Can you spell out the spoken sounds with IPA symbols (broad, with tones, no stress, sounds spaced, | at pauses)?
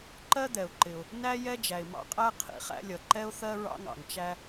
ǃ ɜ˥ d̪ ɛ˩ ʊ̯ ǃ ɪ˩ ʊ̯ | n æ˥ j ɛ˥ d͡ʒ æ˩ ɪ̯ m ɑ̰˥ qʼ æ˥ qʰ ḭ˩ χ æ̰˥ lʲ ʌ˩ ǃ ɛ˥ ʊ̯ θ ɜ˥ ɹ ɑ̰˥ ŋ ɑ̰˩ ŋ t͡ʃ æ˥